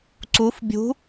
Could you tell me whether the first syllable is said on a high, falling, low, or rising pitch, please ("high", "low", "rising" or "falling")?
rising